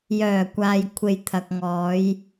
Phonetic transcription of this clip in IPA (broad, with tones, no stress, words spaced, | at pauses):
jœː˨˩kʷaː˨j kʷʰe˨jt̪ʰɐ˨k̚ŋɔː˨˧j